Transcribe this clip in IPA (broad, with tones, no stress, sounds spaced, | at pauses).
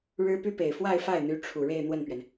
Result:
ɻ ɻ̩˥ p y˥ p e˨˩ ɪ̯ f w a˥˧ ɪ̯ f a˥˩ ɪ̯ n̪ y˧˥ ʈ͡ʂʰ u˨˩ ɻ e˥˧ ɪ̯ n̪ w ə˥˩ n p ɥ ɛ˩ n